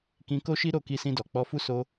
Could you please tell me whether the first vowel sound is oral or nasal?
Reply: nasal